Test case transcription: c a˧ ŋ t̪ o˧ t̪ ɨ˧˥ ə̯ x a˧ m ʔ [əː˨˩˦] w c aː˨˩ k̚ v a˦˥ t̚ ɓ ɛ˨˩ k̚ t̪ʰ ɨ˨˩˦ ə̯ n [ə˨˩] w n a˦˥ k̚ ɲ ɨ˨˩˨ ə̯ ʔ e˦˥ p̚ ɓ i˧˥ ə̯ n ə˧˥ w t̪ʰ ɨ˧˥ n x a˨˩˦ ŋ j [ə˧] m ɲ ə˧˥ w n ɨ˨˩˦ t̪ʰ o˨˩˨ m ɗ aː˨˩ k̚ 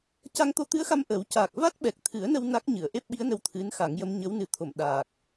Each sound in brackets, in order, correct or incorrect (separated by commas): correct, incorrect, incorrect